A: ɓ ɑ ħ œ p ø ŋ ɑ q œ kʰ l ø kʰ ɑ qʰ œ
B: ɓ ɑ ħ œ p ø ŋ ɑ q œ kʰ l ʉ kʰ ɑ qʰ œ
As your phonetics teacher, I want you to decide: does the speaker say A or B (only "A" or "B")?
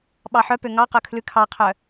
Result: B